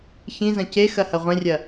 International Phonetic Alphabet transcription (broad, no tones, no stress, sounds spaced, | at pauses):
ç ĩ z ɐ̃ c e x ɐ h ɐ ʁʷ ẽ rʲ ɐ